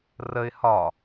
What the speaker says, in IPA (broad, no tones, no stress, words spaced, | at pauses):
rəɪ̯ hɒ